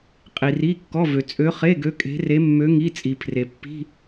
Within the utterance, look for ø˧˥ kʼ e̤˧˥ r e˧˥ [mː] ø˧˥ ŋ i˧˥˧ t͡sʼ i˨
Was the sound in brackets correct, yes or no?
yes